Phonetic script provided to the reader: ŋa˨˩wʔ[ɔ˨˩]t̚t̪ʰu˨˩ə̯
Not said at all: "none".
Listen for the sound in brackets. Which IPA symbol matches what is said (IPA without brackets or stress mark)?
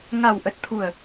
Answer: ə˨˩